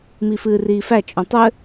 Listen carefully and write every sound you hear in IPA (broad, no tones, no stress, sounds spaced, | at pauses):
m i f ɨː r iː f æ t͡ʃʼ õ tˤ ɘ